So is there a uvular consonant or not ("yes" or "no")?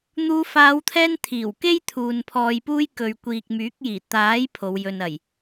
no